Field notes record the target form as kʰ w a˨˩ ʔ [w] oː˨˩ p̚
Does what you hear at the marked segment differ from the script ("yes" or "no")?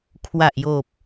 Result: yes